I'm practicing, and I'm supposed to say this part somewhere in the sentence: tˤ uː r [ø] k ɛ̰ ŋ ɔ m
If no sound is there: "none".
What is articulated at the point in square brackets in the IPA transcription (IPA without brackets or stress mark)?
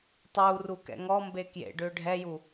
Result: u